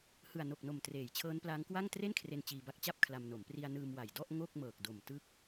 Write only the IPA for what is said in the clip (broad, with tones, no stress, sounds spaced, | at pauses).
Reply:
h ɯ˨˩ a̯ n o˨˩ k̚ n o˨˩ m t r eː˨˩ j t͡ɕʰ ɤː˦˥ n p l aː˦˥ ŋ k w a˥˩ ŋ t r e˥˩ n kʰ r e˧ n t͡ɕ iː˧ b a˦˥ k̚ t͡ɕ a˥˩ p̚ kʰ l a˧ m n o˩˦ m p r i˧ a̯ n ɯː˧ m w a˨˩ j d ɔ˥˩ ʔ ŋ o˥˩ k̚ m ɤː˨˩ k̚ d o˨˩ m t ɯ˦˥ k̚